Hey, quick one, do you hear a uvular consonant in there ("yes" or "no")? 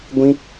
no